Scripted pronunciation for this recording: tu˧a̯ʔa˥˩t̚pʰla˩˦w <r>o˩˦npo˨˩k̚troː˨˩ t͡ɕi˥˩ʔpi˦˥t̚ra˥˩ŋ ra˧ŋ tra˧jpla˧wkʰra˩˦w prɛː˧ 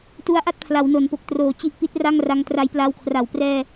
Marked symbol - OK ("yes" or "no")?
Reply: no